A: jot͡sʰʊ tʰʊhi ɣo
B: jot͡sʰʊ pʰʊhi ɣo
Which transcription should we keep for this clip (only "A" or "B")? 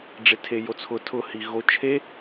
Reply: A